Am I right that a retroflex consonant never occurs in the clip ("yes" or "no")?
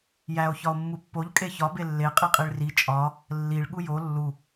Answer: no